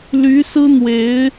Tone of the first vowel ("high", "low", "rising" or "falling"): rising